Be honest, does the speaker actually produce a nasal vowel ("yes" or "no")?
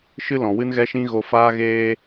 yes